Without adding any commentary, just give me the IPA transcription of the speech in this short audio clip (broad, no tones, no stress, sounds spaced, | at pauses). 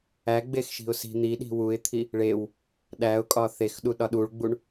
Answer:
æ ɡ͡b e x ʃ i̤ ʊ̯ s i̤ n̪ i ɗ i̤ w u ɪ̯ t̪ʰ i | ɭ e w | ɗ æ ʊ̯ kʼ ɒ θ e x ɗ u ɗ ɒ ɗ u ɭ ɡ͡b u ɳ